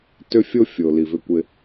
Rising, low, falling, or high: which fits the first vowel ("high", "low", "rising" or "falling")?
high